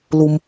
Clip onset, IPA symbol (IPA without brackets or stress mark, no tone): l